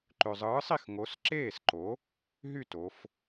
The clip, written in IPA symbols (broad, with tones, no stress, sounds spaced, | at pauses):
ǃ ø˨ zˤ ɯː˨˥ sˤ i˥˩ x ŋ o˨˥ s ǁ eː˥˩ s ǃ o˨˥ | ɦ y˥˩ t o˨˥ f